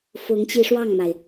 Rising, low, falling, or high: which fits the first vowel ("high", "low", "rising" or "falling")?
rising